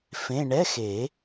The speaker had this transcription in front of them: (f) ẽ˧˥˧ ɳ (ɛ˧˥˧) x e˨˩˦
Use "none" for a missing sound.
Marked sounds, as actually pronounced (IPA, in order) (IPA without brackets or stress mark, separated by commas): f, ɛ˧˥˧